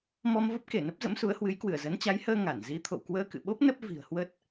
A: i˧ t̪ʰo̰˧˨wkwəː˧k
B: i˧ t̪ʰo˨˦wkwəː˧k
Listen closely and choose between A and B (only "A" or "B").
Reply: A